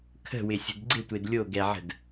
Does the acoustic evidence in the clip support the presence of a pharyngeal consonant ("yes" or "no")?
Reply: yes